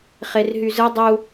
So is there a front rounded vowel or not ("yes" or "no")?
yes